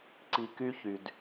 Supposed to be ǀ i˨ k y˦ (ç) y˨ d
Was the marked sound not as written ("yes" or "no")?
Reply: no